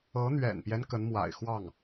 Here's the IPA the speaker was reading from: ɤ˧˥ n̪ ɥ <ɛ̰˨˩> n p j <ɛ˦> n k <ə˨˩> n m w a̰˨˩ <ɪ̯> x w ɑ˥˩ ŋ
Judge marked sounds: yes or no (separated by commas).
yes, yes, no, yes